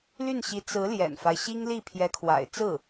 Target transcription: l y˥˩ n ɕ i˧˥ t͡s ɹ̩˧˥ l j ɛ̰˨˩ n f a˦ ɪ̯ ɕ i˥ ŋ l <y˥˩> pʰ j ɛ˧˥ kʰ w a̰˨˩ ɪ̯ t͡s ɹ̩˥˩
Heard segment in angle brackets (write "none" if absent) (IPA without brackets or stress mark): i˥˩